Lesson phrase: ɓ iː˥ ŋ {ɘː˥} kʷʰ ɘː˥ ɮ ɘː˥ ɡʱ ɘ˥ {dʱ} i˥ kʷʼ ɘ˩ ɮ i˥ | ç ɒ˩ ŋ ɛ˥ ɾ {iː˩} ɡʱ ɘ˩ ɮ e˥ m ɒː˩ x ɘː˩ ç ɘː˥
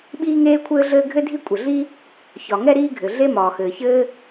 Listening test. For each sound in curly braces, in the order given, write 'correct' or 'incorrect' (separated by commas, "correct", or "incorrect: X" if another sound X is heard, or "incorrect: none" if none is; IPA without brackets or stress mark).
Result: incorrect: eː˥, correct, incorrect: iː˥